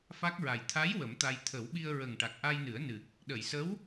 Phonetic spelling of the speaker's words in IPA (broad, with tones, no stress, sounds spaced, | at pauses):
f a˦˥ k̚ ɹ a˨˩ j t̪ʰ a˧˥ j w ə˨˩˦ m t̪ a˧ j t̪ʰ ə˨˩˦ w ɓ i˧ ə̯ ɹ ə˨˩ ŋ ʈ a˨˩ k̚ ʔ a˧ j n ɨ˨˩˦ ə̯ n ɨ˨˩ k̚ | ɗ ə˨˩˨ j s ə˧˥ w